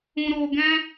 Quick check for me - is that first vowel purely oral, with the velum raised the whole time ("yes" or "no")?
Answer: no